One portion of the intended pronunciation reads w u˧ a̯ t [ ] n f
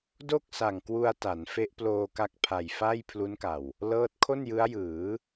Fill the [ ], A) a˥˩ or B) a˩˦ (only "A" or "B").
B